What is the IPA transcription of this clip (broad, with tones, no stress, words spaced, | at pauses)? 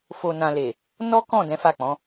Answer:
fo˨ nã˨le˨ | nɔ˦kɔ̃˦˨ dɛ̃˨˦fa˦˨k͡pɔ̃˨˦